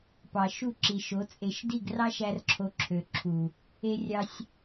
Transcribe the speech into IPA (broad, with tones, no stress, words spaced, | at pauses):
pɑ˨ʃu˦˨ǁi˨ʃo˨˦ t͡sʼe˨ʃdi˦˨ɡ rɑ˦ ʃæ˦rǁʰo˧ǁʰø˨ǁʰu˨ | e˦rʲɑ˦sʲ